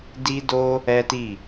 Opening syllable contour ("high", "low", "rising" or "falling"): high